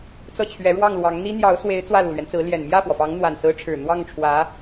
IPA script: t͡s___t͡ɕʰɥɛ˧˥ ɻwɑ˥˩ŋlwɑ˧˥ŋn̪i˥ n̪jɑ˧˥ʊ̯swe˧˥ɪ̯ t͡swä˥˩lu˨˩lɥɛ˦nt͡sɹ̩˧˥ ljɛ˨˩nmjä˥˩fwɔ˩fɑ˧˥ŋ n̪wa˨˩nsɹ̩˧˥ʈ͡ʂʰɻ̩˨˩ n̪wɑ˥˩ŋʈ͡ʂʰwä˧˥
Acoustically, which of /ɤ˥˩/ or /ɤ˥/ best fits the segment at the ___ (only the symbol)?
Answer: ɤ˥˩